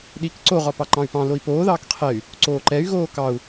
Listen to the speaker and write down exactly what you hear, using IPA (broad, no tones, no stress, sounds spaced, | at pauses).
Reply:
ɗ i k ǀ o ʁ ɒ p ɑ ǃ ɑ̃ y̯ p ɑ̃ l o i̯ p oː ð ɑː k qʰ ɛ y̯ | ǀ oː ǃ ɛ y̯ ɣ oː k ɑ u̯